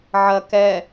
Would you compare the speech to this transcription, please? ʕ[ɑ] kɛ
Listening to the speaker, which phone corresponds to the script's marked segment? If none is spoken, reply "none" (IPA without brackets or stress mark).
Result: ɐ